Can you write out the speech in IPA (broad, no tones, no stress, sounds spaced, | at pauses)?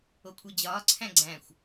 o kʷʰ e d͡ʑ ɒː ǀʰ æ̃ ɡ͡ǀ æ̃ xʷ